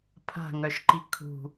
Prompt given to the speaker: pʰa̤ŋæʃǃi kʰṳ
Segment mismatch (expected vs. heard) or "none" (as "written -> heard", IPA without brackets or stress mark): æ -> œ